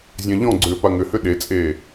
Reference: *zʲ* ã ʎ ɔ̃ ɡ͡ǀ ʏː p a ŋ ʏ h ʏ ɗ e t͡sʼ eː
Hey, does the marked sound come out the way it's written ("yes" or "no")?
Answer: yes